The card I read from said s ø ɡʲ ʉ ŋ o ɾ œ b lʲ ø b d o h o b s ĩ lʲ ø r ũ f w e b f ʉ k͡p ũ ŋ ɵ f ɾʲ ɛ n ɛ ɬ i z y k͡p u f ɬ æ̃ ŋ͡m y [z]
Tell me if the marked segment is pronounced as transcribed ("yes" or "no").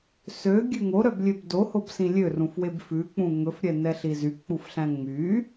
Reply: no